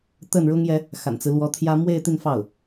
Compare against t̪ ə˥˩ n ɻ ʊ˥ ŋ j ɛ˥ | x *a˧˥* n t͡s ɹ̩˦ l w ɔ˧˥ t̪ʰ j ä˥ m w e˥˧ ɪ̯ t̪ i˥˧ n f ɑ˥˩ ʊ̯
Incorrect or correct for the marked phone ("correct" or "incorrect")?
incorrect